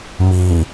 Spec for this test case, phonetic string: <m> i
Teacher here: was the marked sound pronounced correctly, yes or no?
yes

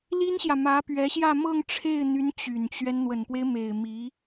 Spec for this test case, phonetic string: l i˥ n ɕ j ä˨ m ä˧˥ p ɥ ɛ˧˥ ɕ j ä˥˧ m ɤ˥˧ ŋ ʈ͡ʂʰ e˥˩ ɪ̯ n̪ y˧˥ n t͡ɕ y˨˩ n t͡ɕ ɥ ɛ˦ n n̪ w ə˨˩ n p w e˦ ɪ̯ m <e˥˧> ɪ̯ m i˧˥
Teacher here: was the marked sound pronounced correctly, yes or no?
no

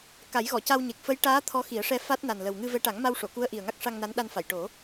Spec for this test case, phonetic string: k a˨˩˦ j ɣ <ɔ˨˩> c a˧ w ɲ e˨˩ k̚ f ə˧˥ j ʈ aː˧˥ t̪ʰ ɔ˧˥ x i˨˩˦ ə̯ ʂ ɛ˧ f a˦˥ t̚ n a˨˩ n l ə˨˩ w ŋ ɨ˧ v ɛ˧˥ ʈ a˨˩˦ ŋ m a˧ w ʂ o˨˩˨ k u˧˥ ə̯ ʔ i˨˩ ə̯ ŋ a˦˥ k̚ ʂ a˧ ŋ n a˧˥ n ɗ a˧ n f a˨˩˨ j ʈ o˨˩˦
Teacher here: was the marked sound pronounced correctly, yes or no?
no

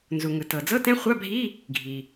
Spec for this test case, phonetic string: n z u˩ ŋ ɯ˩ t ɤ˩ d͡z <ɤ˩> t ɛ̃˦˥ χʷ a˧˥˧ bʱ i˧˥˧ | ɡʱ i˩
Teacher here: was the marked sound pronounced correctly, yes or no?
no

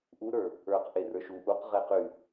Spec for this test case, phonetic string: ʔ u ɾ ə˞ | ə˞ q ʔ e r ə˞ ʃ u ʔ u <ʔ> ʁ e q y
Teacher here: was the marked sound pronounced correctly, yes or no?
no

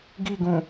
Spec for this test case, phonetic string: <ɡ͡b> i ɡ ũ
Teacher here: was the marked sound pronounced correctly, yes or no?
no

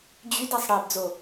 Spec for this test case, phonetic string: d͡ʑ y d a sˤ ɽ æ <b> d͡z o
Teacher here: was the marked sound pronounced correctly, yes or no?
yes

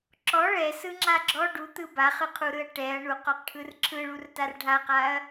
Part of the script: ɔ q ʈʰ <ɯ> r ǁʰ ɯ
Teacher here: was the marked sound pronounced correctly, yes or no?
yes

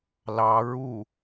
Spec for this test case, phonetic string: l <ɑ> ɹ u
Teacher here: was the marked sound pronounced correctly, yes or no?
yes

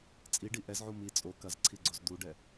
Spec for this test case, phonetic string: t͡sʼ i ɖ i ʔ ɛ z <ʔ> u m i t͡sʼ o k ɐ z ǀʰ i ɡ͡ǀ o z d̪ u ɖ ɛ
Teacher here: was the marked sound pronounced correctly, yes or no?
no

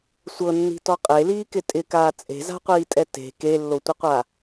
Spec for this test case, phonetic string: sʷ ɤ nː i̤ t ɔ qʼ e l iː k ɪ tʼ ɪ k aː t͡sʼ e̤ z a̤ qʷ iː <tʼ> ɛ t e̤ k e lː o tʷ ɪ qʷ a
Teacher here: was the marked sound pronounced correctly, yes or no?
yes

